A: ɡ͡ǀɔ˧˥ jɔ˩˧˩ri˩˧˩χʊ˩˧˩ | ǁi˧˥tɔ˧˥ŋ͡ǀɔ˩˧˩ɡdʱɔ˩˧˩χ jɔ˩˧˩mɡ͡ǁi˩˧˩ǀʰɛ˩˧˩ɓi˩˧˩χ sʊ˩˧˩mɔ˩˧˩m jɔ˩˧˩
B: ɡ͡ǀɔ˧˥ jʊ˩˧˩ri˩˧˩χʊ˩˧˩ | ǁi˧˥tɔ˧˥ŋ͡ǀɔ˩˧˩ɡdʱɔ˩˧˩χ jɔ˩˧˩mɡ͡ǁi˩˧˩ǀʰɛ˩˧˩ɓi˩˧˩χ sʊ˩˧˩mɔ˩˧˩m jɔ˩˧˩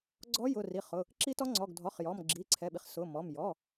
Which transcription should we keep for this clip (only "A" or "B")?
B